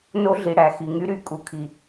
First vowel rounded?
yes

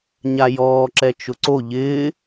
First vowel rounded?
no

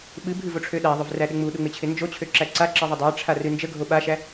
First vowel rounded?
no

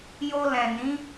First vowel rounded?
yes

